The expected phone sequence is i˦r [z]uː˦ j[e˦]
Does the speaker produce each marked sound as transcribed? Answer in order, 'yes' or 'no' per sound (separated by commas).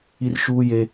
no, yes